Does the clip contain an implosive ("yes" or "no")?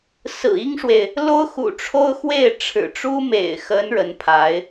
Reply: no